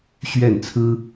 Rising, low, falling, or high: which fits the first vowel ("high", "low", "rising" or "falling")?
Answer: falling